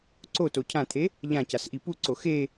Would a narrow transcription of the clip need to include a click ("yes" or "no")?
yes